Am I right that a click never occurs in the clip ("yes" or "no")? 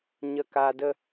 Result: yes